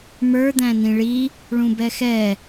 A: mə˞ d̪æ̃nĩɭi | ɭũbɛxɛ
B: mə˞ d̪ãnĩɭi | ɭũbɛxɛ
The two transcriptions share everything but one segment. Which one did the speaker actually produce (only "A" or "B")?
A